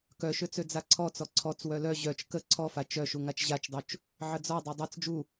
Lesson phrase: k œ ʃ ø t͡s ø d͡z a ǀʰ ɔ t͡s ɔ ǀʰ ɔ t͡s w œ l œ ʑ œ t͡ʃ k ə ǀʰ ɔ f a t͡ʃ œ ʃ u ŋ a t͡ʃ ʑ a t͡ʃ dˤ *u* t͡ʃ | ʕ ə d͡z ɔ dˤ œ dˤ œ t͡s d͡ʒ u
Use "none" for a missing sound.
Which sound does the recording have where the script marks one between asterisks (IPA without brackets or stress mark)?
u